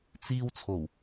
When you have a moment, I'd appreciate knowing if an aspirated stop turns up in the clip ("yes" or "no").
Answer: yes